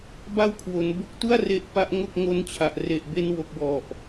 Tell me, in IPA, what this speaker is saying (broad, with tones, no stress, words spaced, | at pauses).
ba˥˩wkʰwo˩˦n bo˦˥k̚tu˥˩a̯ re˦˥ʔpa˦˥ʔŋo˥˩k̚ ŋo˦˥nt͡ɕʰa˨˩ʔ re˨˩ʔbe˧nwo˨˩k̚ wɔ˨˩ʔ